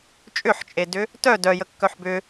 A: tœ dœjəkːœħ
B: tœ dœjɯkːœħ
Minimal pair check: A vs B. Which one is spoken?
A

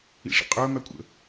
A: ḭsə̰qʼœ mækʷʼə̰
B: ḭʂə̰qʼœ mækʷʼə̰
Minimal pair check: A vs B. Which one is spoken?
B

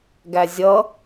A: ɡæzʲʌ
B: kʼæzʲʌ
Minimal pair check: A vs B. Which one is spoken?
A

